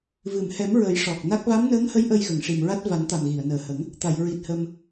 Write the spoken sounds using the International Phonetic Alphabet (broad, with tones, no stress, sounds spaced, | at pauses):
v ɨ˨˩˨ m h ɛ˨˩˦ m ɹ ə˨˩˦ j ʂ ɔ˨˩ k̚ n a˦˥ k̚ v a˧˥ m n əː˧˥ ŋ h ə˧˥ j ʔ ə˧ j ɣ ə˨˩˨ ŋ ʂ i˨˩ m ɹ a˦˥ t̚ v a˨˩˦ n t̪ a˨˩ m ɣ i˨˩˨ ə̯ n əː˨˩ h ə˨˩˦ ŋ | t̪ a˨˩˨ j ɹ i˨˩ t̚ h ə˧ m